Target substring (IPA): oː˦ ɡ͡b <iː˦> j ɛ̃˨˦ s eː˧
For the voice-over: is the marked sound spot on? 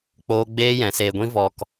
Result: no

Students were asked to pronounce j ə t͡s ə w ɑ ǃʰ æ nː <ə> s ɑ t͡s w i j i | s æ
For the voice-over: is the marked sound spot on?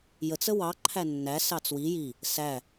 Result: no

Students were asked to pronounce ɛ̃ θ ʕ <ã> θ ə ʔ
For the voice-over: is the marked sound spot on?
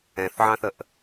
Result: no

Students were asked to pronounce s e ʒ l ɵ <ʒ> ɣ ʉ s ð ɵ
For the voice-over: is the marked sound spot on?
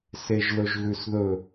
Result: yes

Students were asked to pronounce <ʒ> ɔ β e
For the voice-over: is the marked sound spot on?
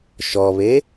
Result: no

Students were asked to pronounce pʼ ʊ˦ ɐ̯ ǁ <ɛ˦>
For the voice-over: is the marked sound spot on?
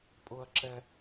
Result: yes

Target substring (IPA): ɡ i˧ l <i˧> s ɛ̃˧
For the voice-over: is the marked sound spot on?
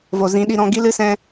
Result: no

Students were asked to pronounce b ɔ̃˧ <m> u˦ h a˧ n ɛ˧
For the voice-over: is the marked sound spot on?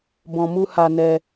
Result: yes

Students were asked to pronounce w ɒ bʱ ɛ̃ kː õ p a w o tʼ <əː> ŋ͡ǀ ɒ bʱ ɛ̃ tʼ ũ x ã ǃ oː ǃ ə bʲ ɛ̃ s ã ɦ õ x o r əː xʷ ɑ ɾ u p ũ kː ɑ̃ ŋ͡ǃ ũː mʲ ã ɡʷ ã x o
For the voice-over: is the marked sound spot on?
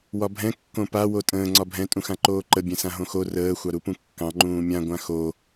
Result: no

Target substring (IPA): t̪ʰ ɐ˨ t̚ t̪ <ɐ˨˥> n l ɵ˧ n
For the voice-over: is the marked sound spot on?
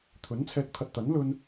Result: yes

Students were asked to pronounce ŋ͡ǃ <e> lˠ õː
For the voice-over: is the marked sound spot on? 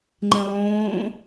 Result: no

